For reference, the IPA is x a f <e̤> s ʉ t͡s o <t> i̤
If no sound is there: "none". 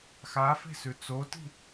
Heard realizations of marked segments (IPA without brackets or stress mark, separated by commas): e̤, t